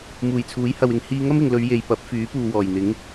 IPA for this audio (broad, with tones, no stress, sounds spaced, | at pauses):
m uː˨˩ j t͡sʰ uː˨˥ j h ɐ˨ w ɪ˨ ŋ h iː˧ ŋ ɐ˥ m ɪ˨ ŋ l ɵ˨˧ ɥ j e˨ j p ɐ˨˥ p̚ f yː˨˥ p uː˨ w ɔː˨˩ j n̪ ɪ˨˥ ŋ